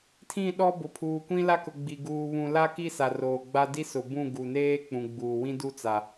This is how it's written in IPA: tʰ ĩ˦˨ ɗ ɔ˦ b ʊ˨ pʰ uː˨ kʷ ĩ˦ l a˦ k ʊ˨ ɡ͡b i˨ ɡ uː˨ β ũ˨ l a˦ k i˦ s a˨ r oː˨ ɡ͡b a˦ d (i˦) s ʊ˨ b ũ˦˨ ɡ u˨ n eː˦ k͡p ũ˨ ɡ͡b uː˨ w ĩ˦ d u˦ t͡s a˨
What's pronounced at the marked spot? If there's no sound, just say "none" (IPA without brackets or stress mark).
i˦